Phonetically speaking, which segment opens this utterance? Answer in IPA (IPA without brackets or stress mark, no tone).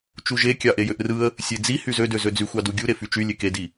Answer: t͡ʃ